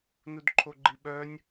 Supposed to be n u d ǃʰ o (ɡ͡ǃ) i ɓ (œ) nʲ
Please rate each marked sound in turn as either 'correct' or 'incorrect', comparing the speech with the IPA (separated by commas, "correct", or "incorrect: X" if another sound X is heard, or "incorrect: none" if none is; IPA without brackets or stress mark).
correct, correct